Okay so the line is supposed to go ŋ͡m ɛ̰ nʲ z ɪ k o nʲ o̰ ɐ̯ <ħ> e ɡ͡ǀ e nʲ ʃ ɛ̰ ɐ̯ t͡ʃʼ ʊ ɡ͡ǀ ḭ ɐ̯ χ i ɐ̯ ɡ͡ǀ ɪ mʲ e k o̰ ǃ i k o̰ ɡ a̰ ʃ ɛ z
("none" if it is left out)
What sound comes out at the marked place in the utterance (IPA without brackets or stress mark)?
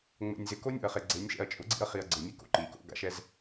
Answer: χ